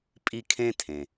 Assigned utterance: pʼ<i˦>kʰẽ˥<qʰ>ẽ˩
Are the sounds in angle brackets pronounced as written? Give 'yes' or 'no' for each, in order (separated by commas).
yes, no